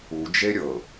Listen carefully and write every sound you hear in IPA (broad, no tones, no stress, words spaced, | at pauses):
u d͡ʒeɾʲɤ